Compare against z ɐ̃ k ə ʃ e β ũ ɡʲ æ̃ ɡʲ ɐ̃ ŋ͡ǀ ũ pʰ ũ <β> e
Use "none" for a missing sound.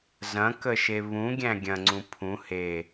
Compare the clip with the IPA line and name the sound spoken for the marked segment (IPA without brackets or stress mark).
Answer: h